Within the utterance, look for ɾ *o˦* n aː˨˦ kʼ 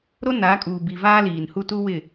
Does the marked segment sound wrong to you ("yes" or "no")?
no